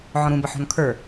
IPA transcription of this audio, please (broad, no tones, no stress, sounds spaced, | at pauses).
ʕ ɔ̃ ɾ ũ b ə ħ ɔ̤ n kʰ ə˞